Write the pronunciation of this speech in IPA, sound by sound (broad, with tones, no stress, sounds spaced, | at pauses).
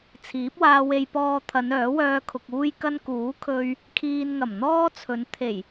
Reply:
t͡sʰ iː˨˥ p̚ w aː˧ w e˧ j p ɔː˧ t̪ʰ ɐ˨˧ n œː˨˥ w œː˧ kʰ ʊ˨ k̚ uː˥ j k ɐ˥ n k uː˨˥ kʰ ɵ˧ ɥ | kʰ iː˧ n ŋ ɐ˨˩ m n̪ ɔː˥ t͡sʰ ɵ˨˧ n t̪ʰ e˨˩ j